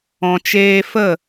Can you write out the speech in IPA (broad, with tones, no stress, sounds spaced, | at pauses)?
ɔ̃˨ t͡ʃ eː˧ f ə˦˨